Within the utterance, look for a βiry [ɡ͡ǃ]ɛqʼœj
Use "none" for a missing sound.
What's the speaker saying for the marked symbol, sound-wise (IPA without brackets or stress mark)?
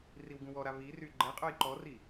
ɡ͡ǃ